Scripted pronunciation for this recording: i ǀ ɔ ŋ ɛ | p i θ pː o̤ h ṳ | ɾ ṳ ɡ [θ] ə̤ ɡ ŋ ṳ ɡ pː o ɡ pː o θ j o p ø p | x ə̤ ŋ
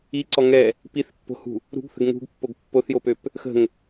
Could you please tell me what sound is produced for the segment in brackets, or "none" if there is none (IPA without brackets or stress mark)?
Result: θ